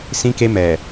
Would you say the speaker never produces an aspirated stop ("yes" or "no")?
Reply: yes